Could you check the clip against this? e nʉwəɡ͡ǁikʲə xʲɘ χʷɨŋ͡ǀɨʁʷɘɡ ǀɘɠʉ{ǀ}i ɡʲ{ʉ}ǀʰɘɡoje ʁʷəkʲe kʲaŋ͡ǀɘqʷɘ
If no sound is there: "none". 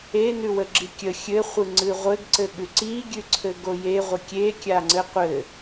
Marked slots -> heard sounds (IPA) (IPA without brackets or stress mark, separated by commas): ǀ, ʉ